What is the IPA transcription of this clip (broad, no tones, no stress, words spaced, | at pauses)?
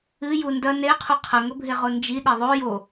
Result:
ɨju ndɐ neqʰu qʰɐŋɵbʱeʁo nd͡ʒiɗe ðˤo jo